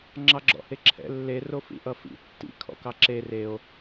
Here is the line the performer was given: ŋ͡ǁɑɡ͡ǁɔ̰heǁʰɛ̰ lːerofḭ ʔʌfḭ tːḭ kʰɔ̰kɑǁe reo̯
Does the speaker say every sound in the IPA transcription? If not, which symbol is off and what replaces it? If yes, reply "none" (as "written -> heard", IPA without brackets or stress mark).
none